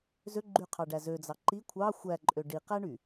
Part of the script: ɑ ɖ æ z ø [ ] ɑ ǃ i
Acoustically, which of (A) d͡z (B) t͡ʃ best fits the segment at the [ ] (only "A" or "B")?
A